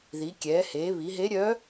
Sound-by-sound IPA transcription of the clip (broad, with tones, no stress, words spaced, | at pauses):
ði˩˧ kʲɛː˩˧heː˩˧βi˩˧ɦe˧˥ ɾʲœ˧˥